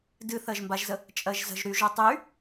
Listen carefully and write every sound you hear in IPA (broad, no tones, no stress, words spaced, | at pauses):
dɨθɜʒmbaʒzə | t͡ʃʼɜʒzə̤ʒ ɾyʒo tˤy